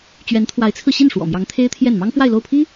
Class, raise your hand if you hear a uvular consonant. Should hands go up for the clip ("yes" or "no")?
no